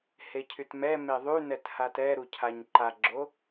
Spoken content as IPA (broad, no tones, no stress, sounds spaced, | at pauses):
h e cʰ y t m ɛ m e ðˤ y n ɛ t h a t ɛ ɾ u cʰ a ɲ ǃ a ɡ͡ǁ o